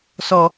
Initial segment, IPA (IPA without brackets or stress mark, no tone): s